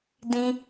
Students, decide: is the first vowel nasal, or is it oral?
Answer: nasal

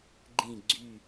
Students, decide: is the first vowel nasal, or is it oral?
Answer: nasal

